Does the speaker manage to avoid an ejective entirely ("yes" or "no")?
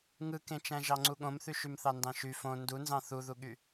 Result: yes